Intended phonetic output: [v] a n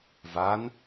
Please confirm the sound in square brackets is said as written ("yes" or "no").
yes